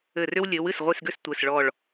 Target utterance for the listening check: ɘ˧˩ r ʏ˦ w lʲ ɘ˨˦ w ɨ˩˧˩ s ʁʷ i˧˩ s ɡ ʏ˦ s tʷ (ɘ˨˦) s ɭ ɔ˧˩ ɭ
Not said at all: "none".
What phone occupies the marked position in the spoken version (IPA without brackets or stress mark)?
ɘ˩˧˩